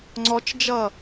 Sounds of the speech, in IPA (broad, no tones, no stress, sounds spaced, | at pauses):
ŋ͡ǀ ɔ t͡ʃ d͡ʒ ʌ